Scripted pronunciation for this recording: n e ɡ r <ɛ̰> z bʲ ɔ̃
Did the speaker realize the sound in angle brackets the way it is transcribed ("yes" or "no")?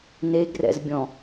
yes